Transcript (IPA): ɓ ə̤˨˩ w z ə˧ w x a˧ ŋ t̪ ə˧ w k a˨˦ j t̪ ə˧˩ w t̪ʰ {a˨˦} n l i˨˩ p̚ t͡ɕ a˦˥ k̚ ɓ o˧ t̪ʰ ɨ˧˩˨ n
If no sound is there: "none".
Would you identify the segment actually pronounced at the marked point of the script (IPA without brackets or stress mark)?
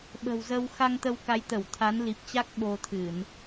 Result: a˨˦